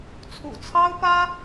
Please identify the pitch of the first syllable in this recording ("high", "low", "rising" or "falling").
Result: low